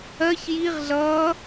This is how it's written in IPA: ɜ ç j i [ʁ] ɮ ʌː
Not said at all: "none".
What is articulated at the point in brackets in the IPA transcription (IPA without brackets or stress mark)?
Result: ʁ